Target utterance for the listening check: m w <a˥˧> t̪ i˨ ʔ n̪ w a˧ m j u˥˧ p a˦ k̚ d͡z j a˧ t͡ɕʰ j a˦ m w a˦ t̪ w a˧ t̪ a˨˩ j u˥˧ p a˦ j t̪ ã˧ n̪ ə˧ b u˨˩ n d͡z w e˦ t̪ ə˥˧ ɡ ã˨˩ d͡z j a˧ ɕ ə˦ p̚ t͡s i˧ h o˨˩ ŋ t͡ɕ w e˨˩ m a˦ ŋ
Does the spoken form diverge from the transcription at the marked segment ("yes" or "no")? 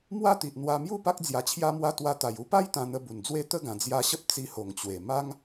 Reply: no